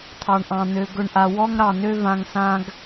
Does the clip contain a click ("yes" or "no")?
no